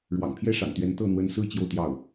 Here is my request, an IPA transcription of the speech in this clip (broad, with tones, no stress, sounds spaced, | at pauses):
ɻ w ɑ̰˨˩ ŋ pʰ j ɛ˥ ʂ ɑ̰˨˩ ŋ t̪ ɥ ɛ˧˥ n t̪ ɤ˥˩ n̪ w ə˧˥ n s ɹ̩˥ t͡ɕ j o˥˧ ʊ̯ t̪ j ɑ˥˩ ʊ̯